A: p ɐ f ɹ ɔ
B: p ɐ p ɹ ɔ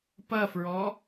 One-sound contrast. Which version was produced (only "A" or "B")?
A